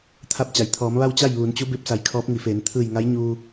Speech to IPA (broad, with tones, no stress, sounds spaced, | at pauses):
t̪ʰ a˧ p̚ t͡ɕ a˩ j t̪ʰ ɔː˩˧ m ʋ a˥˨ w t͡ɕ a˥˨ j ʋ uː˩˧ n t͡ɕ u˧˥ b e˧ p̚ s a˧˩ j kʰ ɔː˧˥ p̚ ŋ i˩˧ f eː˩˧ n t̪ʰ ɯː˧˩ j ŋ a˧˥ j ɲ uː˧